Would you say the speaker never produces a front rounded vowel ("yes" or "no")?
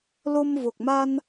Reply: yes